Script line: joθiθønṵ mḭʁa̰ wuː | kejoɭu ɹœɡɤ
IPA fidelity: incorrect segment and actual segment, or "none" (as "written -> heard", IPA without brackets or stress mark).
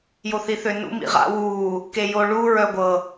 ɡ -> ɡʷ